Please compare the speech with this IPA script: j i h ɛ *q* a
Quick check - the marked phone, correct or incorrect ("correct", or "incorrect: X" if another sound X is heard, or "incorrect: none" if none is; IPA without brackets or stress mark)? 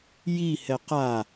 correct